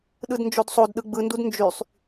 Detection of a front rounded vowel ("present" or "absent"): present